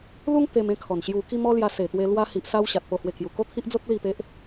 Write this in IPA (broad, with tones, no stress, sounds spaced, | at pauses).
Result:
l u˦ ŋ t̪ e˧ m ẽ˧ kʰ ɔ˨˩ n ɕ j u˧ k i˥˧ m ɔ˦ l j a˧ s e˨˩ t̪ w e˧ l w a˧ h i˨ ʔ s a˦ w ɕ a˨ t̚ p o˧ h w e˧ k j u˨˩ k o˥˧ t̪ʰ i˦ ʔ d͡z o˦ t̚ l i˥˧ p e˦ ʔ